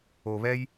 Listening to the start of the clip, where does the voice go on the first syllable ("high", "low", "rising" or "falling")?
low